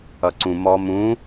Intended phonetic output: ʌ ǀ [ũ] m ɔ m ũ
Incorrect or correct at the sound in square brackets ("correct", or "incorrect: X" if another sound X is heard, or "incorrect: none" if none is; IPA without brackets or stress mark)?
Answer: correct